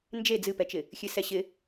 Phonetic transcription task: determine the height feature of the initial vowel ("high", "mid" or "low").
mid